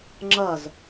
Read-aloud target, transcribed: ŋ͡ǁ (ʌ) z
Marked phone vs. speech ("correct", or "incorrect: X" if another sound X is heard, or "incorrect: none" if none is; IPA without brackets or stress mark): correct